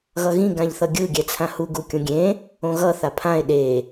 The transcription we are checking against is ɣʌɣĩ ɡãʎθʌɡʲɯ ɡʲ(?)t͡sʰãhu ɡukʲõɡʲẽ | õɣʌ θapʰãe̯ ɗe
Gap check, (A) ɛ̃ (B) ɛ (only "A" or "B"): B